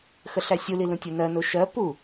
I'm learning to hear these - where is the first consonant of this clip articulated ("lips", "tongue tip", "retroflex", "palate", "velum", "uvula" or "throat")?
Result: velum